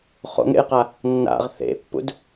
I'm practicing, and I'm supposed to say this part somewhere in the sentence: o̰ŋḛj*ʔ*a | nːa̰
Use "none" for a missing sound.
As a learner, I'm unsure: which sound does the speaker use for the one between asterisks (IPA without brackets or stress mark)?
q